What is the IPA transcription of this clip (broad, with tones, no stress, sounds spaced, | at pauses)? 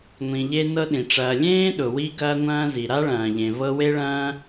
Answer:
ŋʷ ĩ˨ ʎ e˦ n ɤ˦ ɗ ĩ˩ ʈ͡ʂ ɐː˨ lʲ ẽː˥ ɗ ʊ˩ w i˦ ɡ ɐː˦ ŋʷ ɐ̃ː˦ z i˩ ɾ a˥ ɭ ɐ̃ː˩ ʎ ẽ˩ v ɤ˦ w e˥ ɭ ɐ̃ː˥